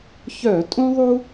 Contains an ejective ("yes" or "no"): yes